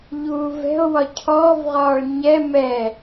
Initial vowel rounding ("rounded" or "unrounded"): rounded